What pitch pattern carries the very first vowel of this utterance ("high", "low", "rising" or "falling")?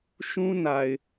high